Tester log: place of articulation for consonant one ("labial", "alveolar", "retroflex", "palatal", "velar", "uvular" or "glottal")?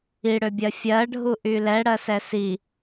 retroflex